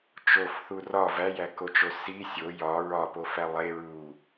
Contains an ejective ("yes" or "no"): no